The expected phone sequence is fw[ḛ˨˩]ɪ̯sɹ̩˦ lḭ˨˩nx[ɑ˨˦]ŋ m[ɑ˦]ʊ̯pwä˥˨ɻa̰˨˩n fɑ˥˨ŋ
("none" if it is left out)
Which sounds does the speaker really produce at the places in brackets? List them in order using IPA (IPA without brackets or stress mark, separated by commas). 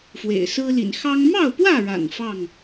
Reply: ḛ˨˩, ɑ˦, ɑ˥˨